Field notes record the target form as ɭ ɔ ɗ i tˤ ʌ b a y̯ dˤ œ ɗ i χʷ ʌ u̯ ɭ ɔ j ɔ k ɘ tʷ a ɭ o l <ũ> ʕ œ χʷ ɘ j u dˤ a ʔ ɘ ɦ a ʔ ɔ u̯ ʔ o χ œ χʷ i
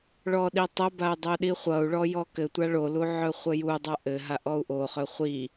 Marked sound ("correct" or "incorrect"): incorrect